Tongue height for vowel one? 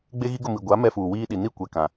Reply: mid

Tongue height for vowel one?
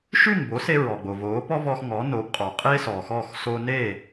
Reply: high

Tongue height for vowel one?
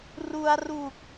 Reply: high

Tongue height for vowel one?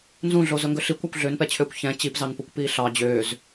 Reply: high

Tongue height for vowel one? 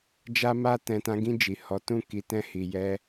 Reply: low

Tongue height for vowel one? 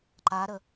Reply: low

